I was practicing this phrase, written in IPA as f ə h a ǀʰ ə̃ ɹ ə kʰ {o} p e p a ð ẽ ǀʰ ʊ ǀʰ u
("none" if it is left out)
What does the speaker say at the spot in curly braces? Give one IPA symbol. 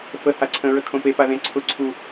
õ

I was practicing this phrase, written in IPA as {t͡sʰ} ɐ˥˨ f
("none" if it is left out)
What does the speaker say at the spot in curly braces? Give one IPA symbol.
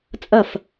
t͡sʼ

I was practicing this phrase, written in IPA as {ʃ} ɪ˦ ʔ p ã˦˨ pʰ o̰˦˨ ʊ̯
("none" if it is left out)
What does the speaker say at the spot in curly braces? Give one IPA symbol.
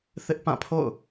θ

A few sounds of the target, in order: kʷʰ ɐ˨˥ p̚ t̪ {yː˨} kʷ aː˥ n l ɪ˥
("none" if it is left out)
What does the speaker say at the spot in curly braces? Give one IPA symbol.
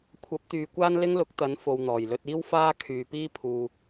yː˨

